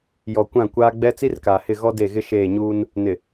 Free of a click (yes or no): yes